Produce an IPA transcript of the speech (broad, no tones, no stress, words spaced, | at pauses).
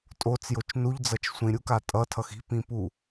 tʼot͡sjot͡ʃ nuʎd͡zʌt͡ʃ sʷĩɾʲuka tʼʌtʰʌx i̤pĩpu